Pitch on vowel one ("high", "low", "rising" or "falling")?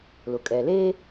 low